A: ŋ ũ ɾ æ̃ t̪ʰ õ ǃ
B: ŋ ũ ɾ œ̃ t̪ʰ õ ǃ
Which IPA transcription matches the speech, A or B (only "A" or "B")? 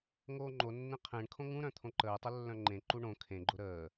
B